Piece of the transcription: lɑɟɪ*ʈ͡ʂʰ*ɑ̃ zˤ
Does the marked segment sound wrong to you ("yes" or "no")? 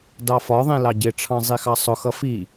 no